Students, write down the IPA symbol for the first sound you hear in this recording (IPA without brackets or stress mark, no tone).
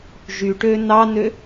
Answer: ʒ